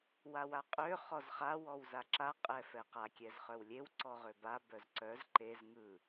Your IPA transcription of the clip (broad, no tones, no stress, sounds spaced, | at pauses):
w a w a qʼ ø χ ɔ z χ a w ɔ w z a ǁ a qʼ ɛ f ɛ q a kʲ ɛ z χ œ w lʲ e w ǀ ɔ ʁ ø b a b œ z ǀ œ z ǃ e z ŋ ɯ